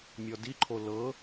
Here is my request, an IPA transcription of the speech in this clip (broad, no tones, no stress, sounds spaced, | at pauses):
mʲ ɔ d i ǃʰ o l ɤ